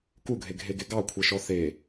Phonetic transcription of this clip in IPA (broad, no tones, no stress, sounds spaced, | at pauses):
k u ɡʱ e ɡʱ e ɡ e ɡ ɑ kʷʰ e ʃ ɔ θ e